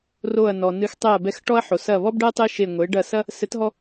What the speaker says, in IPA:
r o˧˩ ɐ̯ n ɔ˩ n ɨ˨˥ x tˤ ɛ˧˩ ɐ̯ b ɛ˧˩ x ʈ ɔ˦ ɐ̯ ħ o˩ s ɐ˧˩ β ɔ˦ b ɖ ɛ˦ tˤ e˦ ʃ e˧˩ ŋʷ e˩˧ ɖ ɐ˧˩ s ɐ˦ | s ɘ˨˥ t ɦ ɔ˦

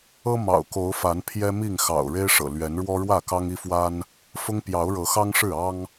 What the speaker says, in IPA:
ɤ˦ m ɑ̰˨˩ ʊ̯ k o˨˦ ʊ̯ f a˨˦ n pʰ j ɛ˦ m i˥˨ ŋ x ɑ̰˨˩ ʊ̯ ɻ e˦ ɪ̯ ʂ ɤ̰˨˩ l ɥ ɛ˨˦ n ɻ w ɔ˦ ɻ w ä˥˨ k ɑ˦ ŋ i˦ f w a˦ n | f ʊ˦ ŋ p j ɑ˨˦ ʊ̯ ɻ ɤ˨˦ x ɑ˦ ŋ ʂ ɻ̩˥˨ ɑ˦ ŋ

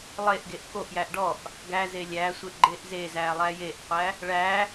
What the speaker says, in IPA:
lˠ e ʔ ɡ e ʔ k o ʔ j æ ʔ ɖ ɔ ʔ | ɡ æ z e lʲ æ sʷ e ʔ ɡ͡ǃ e ʔ z e z æ lˠ æ j e ʔ qʷ æ | ɭ æ

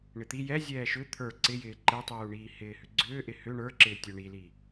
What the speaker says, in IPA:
ɳ ɪ t̪ i j ɛ zʲ ɛː ʃ ʏ t̪ʰ ə˞ ǀ ɪ j ɪː ǃ ɛ tˤ uː ɳ iː h ɪː h ʏ ɡ͡ǀ ʏː ʔ ɪ h ʏ ɳ ə˞ ǁ ɪː tʲ ə˞ ɳ i l i

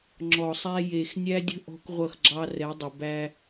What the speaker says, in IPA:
ŋ͡ǁ ɔ˨ sˤ æ˦ j eː˨ x nʲ æ˦ dʲ ə̤˦ ʔ ɔ̤˦ k ʁʷ ʌ˦˨ x ɡ͡ǁ ɑ˦ r ɛ˨˦ dˤ ʌ˨ b æ˦

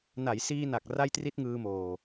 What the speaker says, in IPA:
n a˩˦ j s iː˧ n a˨˩ k̚ r a˥˩ j t r i˥˩ t̚ ŋ ɯː˧ m oː˨˩

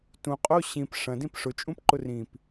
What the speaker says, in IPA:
t ũ qʼ o ɕ ĩ p ʂ ɐ̃ d ĩ p ʂ ʊ t͡ʃʼ ũ p ǃ ʊ r ĩ p

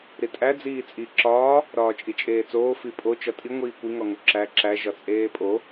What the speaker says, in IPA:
ɾ i tʼ æ d͡z iː t͡sʼ i ǁ ɒː | ɾ ɒː t͡ʃʼ i t͡ʃʼ eː t͡s oː f i pʼ o t͡ʃ ɒ tʼ i ŋʷ iː kʷ i ŋ ɒ ŋ o ǁ æ ǁ æ ʒ ɒ t͡sʼ eː pʼ o

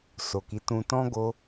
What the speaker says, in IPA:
s o˨ k i˨˦ t ũ˧ t ɔ̃˦ ɡ o˧

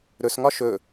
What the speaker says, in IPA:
ɾ ɵ s ŋ ɒ ʃ ɵ

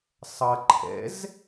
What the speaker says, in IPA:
sˤ ʌ ǃʰ ɛ̰ z

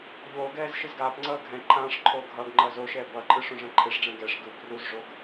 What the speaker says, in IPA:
ʎ oː ɡ ɛː z ʃ ɯ z ɡ aː p ŋ͡ǀ ʌː ɡʱ ɛ̃ ǃʰ ãː ʂ ǃʰ oː ɡʱ ʌ ɡ ŋ͡ǃ ʌː z o ʃ ɛː b ʌ ǃʼ ɯ ʂ õ ʐ ɛ̃ ǃʰ e ʂ ɖ͡ʐ ɛ̃ ɡ ɛ ʂ ɡ ɯ b r u z ʐ o ɡ

